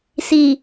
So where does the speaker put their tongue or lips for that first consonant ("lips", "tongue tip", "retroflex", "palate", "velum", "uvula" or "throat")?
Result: tongue tip